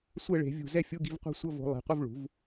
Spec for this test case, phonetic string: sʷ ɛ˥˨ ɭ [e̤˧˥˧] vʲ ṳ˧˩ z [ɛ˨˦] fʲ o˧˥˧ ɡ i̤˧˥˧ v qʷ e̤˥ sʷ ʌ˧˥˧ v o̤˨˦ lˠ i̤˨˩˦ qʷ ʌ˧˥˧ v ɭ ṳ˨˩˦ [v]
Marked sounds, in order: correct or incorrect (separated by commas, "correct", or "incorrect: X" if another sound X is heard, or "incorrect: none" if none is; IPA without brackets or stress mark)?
incorrect: e̤˨˩˦, incorrect: ɛ˥˨, correct